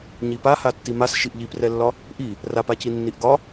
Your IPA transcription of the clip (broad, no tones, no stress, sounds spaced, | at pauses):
ɲ i p a h a tː i m a s ʃ i ʔ ʎ i p r ɛ lː ɒ | ʔ i | r a p a c i nː i ʔ ɡ ɒ